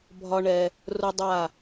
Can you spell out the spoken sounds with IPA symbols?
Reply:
bʱɒ˦ɳɛ˧ | rʊ˦dˤa˦˨

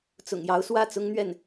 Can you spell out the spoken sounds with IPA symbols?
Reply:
t͡sʊ̰˨˩ŋjɑ˧˥ʊ̯ swä˥˩t͡sʊ˥ŋn̪ɥɛ˥˩n

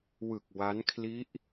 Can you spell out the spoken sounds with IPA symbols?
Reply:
wɯ˨˩k̚ wa˦˥nkʰli˦˥ʔ

